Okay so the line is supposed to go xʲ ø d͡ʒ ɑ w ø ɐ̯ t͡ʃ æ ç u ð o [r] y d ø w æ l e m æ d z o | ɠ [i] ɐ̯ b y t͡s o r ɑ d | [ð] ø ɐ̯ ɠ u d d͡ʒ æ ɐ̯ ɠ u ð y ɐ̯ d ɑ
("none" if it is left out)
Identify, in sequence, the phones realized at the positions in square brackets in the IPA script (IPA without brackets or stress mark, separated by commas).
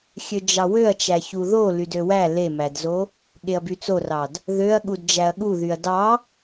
l, e, ð